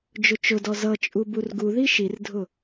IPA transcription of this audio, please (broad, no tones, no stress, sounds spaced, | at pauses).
d͡ʒ ʊ t͡ʃ ʊ d ɔ z ʌ t͡ʃʼ u b u r ɡ u ð i ʃ i r dʱ ʊ